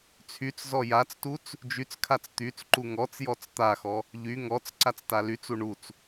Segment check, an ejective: absent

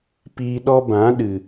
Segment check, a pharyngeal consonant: absent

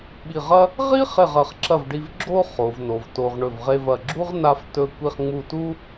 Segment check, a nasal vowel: absent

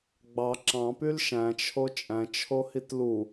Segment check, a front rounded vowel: present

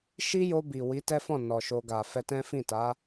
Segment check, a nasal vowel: present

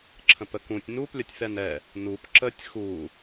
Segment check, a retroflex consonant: absent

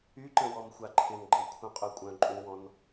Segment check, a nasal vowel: present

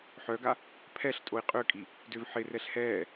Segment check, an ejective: present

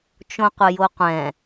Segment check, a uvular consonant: present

